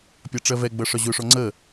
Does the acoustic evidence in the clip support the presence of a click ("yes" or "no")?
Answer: yes